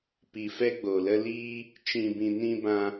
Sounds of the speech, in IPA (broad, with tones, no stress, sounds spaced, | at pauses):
p i˨ f ɛ˧ ɡ͡b o˨ l ə˧ l iː˧ | t͡ʃ ĩ˨ b ĩ˨ n ĩ˧ b ã˧